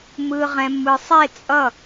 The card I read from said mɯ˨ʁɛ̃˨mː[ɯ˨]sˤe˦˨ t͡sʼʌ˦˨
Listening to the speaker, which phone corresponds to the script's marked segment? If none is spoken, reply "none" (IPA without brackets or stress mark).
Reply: ɯ˨